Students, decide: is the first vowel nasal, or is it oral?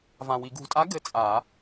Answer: nasal